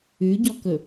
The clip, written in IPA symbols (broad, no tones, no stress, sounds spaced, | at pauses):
ʉ ɟ ɔ k ɵ